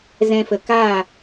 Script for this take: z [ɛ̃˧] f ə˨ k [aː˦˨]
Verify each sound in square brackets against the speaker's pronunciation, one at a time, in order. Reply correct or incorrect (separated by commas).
correct, correct